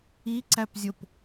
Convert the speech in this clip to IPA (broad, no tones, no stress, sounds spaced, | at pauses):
i ǀ æ p zʲ o p